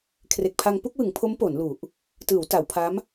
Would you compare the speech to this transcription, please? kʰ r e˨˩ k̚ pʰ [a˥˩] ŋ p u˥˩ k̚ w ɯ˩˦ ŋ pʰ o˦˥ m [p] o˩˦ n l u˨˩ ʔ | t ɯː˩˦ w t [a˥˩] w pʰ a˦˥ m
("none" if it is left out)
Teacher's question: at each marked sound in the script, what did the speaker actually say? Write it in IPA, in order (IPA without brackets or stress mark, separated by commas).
a˧, p, a˩˦